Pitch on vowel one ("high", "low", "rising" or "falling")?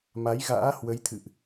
rising